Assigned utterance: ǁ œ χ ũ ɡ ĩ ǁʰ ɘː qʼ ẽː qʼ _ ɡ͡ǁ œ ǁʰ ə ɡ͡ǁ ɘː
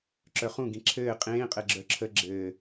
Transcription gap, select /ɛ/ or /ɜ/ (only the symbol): ɛ